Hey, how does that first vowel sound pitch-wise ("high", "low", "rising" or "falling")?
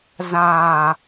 low